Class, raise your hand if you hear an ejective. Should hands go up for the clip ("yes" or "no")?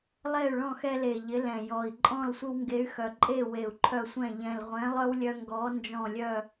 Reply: yes